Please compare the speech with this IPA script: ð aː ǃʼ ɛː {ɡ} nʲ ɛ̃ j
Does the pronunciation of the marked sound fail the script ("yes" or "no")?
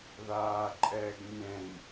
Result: no